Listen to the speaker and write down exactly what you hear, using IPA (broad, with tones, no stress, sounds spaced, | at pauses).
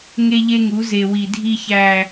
ŋ e˦ ʎ e˦ ŋ u˨˦ z e˨ w i˨ dʱ i˦ ç æ˦